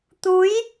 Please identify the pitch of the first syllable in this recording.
rising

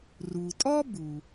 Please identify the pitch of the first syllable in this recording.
low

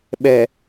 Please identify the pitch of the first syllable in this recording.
low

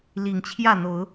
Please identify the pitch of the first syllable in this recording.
low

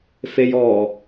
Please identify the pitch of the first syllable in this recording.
low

